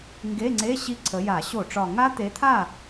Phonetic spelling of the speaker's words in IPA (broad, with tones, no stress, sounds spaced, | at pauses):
ŋ ɡ e˧˥˧ ŋ͡ǀ e˧˥˧ ɕ i˦˥ ǀʰ ə˨˦ j a˧˩˧ ɕ o˧˩˧ ʈ͡ʂ ɒ˨˩ ŋ a˦˥ t̪ e˨˦ t̪ʰ a˥˩